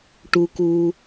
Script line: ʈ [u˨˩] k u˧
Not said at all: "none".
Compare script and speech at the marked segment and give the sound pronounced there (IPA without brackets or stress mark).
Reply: u˧